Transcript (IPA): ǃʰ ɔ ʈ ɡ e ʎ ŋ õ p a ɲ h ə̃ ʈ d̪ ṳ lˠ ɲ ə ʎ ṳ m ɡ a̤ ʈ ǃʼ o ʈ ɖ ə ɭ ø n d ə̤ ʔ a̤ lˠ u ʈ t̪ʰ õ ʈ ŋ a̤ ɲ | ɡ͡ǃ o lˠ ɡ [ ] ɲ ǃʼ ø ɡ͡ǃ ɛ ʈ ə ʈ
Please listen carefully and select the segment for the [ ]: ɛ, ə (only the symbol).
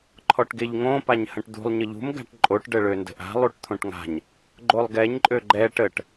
ɛ